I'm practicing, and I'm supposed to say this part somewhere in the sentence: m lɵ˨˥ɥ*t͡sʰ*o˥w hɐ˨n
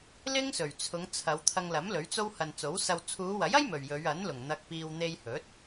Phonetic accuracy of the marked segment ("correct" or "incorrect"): incorrect